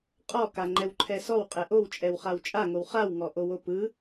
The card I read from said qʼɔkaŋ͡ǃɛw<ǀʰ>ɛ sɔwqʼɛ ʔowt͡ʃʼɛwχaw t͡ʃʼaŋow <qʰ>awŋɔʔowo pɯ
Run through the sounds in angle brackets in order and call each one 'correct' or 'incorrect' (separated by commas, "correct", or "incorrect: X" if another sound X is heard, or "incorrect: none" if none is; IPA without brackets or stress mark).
incorrect: ǃʰ, incorrect: χ